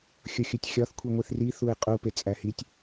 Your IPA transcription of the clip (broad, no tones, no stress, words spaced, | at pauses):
xʲoxʲutʲxʲɒθ kʷʰiŋʷiθri θuɪ̯qʼu pet͡sʼæhitʲ